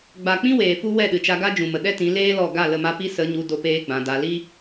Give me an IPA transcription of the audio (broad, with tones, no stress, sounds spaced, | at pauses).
ɡ͡b a˨ k͡p ĩ˦ w eː˨ f u˦ w ɛ˦˨ ɗ ɨ˨ t͡ʃ a˧ ɡ a˦ d͡ʒ ũ˨ m ə˨ ɗ ɛ˦ t ĩ˨˦ l eː˦ l ɔ˦˨ ɡ a˦˨ l ə˦˨ m a˦ p i˦ s ə˨˦ ɲ u˧ d o˦ p eː˦ ɡ͡b ã˧ d a˧ l i˦